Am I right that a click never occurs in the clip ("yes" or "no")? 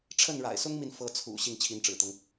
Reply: yes